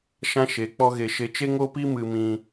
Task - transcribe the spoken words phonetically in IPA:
ʃ ã˦ ʃ e˨˦ k͡p ɔ˦ ɣ e˧ ʃ e˧ t͡ʃ e˦ ŋ o˦ p i˦ m ɨ˧ m ĩ˧

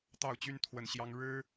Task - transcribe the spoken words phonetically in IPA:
t̪ ɑ˥˩ ʊ̯ t͡ɕ y˥ n t̪ʰ w ə˥˩ n ɕ j ɑ˥ ŋ ɻ ɻ̩˥

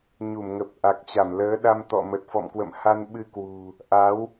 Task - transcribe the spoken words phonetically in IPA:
ɲ u˧˩ m ŋ ə˨˩ p̚ ʔ a˨˩ k̚ t͡ɕ a˧˩ m l əː˨˦ ɗ a˧ m t̪ ɔ̰˧˨ m ə˨˩ t̚ f ɔ̰˧˨ m k w ə̰˧˨ m h a˧ n ɓ ɨ˧ k w ṳ˨˩ | ʔ a˨˦ w

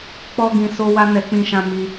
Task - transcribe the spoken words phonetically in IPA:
k͡p ɔ˧ ɡ ĩ˨ s o˧ w a˦ n ɛ˧ k͡p ĩ˦ ʃ ã˦ m i˧

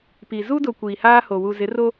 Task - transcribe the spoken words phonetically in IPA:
p i˨ z u˦ d ʊ˨ kʷ iː˨ h aː˦ h o˨ w u˨ z ɪ˨˦ r o˦

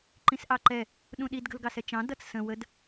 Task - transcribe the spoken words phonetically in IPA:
ǃ ĩ s ʔ ɑ ǃ ɛ | ɗ ũ ɗ i d ɡ ə̤ l ɡ ɑ s ɛ t͡ʃ ɑ̃ d ʌ t͡s s ə̃ w ə d

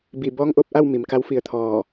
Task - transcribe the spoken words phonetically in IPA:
b i˧˩ b ɔː˧˥ ŋ ʔ o˧ p̚ ʔ a˥˨ w m i˩˧ m k a˧˥ w f i˧ ə̯ t̪ʰ ɔː˧˩

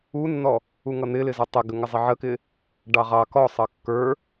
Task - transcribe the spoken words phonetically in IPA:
u nː ɔ | u ŋ ʌ n̪ ɪ l ɪ z ə tˤ ɪ ɡ ə ŋ ɪ zˤ ɪ ʕ ə k ɪ | ɖ ɑ ʁ ɑ k ɔ sˤ ʌ kː ə˞

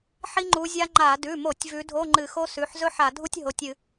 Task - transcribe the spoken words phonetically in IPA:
ħ i˥ ŋ͡ǃ u˨˦ zʲ a˥ ŋ͡ǃ a˧˩˧ d ʉ˩˧˩ m o˧˩˧ tʲ v ʉ˨˦ dʱ o˧˥˧ ŋ͡ǃ ɨ˧˩˧ x o˥ s ʉ˩˧˩ ħ z ɵ˥ ħ a˧˩˧ dʱ u˥ tʲ ɦ o˩˧˩ tʲ ɨ˧˩˧

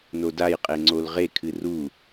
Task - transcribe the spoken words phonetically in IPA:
n o d a j qʼ e ŋ͡ǀ o l ʁ e kʰ ɨ r u

